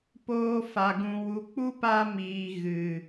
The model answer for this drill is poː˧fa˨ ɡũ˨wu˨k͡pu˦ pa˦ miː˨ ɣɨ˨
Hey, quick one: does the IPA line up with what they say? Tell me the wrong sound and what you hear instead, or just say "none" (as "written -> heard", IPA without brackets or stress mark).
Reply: none